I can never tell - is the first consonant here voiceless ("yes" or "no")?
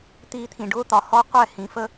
yes